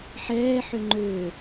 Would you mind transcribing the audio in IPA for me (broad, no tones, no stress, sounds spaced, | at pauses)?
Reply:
ħ ɛː ħ ʏ ŋ͡ǃ ø